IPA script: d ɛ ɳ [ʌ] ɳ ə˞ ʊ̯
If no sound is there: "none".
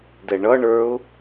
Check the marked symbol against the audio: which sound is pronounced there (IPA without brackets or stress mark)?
ʌ